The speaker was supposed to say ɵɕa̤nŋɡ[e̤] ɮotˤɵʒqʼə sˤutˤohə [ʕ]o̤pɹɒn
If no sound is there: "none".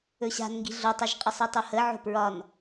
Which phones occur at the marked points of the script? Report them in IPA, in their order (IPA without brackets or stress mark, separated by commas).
i̤, ʕ